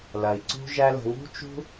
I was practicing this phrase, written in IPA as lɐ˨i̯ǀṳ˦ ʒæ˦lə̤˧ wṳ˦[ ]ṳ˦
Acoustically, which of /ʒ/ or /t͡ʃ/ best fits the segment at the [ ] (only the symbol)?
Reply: t͡ʃ